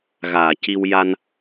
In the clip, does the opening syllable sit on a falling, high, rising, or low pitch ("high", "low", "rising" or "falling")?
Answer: low